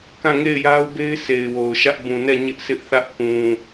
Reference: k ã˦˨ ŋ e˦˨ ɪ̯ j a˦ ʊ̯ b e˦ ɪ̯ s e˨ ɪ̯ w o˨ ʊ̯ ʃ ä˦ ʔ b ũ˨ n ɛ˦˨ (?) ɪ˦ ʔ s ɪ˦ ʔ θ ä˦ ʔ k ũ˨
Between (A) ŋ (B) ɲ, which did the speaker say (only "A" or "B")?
B